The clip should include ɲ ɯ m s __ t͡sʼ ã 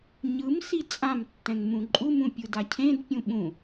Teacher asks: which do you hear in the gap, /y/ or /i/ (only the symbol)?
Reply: i